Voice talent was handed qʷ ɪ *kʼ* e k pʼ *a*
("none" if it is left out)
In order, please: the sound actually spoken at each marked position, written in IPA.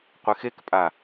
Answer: x, a

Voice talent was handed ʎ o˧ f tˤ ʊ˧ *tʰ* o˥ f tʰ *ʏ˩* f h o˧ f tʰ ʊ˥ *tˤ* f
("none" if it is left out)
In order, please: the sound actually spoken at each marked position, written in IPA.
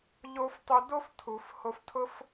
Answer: d, u˩, none

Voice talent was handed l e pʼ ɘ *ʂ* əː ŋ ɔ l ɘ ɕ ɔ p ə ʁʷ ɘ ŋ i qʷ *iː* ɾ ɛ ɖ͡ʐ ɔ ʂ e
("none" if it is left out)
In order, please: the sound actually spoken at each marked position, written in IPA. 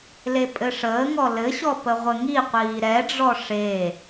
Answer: ʂ, iː

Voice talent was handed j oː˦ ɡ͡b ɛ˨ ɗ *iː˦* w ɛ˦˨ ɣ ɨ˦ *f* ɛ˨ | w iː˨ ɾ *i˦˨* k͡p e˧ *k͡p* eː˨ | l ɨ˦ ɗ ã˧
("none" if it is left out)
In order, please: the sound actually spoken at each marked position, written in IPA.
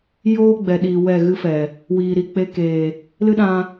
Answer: iː˨, f, i˨, k

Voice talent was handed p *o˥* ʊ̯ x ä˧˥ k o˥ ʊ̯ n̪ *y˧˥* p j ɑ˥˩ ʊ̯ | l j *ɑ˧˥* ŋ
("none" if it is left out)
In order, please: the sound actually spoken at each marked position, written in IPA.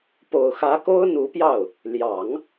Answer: o˨˩, u˧˥, ɑ˨˩˦

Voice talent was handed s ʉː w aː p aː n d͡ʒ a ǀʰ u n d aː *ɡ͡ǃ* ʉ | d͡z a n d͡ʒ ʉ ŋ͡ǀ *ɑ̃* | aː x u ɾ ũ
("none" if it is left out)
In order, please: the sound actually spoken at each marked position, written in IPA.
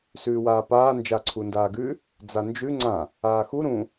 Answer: ɡ, ã

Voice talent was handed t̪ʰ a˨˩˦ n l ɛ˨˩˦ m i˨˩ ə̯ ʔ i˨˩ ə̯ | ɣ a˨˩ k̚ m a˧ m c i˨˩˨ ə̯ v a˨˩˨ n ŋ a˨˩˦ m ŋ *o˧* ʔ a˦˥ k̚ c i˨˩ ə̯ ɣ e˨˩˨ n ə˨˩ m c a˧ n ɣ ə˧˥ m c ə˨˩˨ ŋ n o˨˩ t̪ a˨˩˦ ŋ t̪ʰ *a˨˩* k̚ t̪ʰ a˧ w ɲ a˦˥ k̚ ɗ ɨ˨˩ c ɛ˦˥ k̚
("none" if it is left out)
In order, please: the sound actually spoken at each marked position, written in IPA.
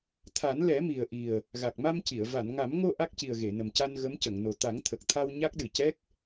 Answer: o˧, ə˨˩

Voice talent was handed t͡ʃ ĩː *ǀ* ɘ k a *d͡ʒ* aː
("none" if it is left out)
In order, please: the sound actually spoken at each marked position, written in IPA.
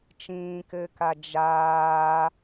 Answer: k, d͡ʒ

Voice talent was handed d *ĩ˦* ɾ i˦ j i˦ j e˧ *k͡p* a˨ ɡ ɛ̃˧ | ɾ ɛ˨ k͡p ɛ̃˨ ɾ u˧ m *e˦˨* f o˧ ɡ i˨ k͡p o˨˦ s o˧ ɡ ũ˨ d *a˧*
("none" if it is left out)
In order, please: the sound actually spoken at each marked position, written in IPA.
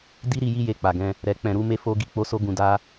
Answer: i˦, k͡p, e˧, a˧

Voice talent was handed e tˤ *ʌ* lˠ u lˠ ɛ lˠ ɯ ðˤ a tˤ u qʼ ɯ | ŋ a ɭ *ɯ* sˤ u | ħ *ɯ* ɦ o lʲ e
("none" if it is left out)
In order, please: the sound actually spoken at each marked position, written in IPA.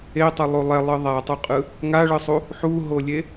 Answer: ʌ, ɯ, u

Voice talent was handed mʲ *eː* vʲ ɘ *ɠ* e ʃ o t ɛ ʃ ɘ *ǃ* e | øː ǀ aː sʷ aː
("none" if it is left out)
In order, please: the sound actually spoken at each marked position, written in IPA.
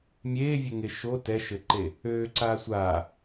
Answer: eː, ŋ, ǃ

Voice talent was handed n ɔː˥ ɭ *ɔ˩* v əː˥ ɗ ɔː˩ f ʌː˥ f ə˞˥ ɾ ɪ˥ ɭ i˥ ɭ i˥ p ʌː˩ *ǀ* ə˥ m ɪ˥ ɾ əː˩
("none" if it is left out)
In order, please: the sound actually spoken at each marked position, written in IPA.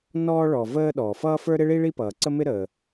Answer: ɔ˩, ǀ

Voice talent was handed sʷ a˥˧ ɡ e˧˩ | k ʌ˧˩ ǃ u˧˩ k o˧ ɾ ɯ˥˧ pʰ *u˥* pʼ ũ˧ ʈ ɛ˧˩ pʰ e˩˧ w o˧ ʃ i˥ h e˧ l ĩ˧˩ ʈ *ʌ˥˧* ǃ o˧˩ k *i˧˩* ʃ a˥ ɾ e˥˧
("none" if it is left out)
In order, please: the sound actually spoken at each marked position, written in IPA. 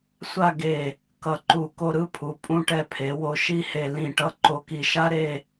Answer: u˩˧, ʌ˧, i˧˩

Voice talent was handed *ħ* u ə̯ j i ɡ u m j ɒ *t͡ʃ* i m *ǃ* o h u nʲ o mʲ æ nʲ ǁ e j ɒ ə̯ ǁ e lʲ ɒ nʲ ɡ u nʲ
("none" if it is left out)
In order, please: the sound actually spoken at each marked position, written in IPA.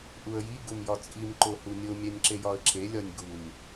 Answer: ʔ, t͡sʼ, ǃ

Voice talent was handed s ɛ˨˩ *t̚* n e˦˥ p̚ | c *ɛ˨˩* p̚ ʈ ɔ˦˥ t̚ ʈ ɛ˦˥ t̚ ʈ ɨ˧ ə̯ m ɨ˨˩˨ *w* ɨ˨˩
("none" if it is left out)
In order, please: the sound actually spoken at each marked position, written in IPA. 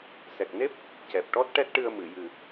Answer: k̚, ɛ˨˩, j

